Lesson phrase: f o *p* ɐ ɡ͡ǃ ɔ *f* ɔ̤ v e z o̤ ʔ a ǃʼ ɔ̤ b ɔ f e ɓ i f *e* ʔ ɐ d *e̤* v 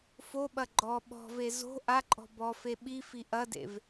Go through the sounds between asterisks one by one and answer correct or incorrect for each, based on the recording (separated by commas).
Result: incorrect, incorrect, incorrect, incorrect